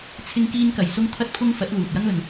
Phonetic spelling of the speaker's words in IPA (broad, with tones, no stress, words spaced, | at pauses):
t͡sʰɪ˥ŋkiː˥nkɐ˧j sʊ˥ŋt̪ʰɐ˥t̚pʰʊ˥ŋ fɐ˨˥t̚luː˨t̚jɐ˥ŋɵ˨n